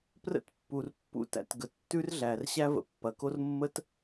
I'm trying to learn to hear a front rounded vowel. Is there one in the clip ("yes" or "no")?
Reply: no